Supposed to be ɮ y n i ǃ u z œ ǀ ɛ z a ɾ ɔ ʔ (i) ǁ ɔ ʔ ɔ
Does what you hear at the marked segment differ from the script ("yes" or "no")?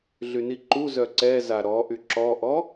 yes